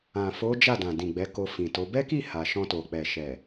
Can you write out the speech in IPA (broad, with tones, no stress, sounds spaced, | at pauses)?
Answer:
ã˨ f o˨˦ d͡ʒ a˦˨ d ã˨ d ĩ˨ ɡ͡b ɛ˨˦ k o˧ f ĩ˨ t o˨˦ b ɛ˦ k i˦˨ h a˨ ʃ ɔ̃˧ t o˨ k͡p ɛ˨ ʃ ɛ˨